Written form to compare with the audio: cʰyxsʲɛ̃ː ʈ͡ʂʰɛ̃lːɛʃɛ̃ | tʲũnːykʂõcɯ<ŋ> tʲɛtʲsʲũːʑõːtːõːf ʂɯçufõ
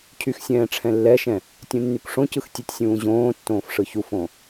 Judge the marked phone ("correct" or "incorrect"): incorrect